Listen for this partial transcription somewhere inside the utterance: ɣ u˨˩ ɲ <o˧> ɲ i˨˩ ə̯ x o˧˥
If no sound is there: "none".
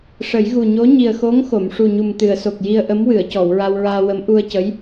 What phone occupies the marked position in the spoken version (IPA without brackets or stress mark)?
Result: o˧˥